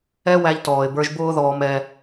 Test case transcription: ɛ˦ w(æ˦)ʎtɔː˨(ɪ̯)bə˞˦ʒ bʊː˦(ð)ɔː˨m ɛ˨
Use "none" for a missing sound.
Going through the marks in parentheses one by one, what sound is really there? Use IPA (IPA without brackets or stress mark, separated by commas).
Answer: æ˦, ɪ̯, ð